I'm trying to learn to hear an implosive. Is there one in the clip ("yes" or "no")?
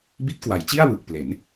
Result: no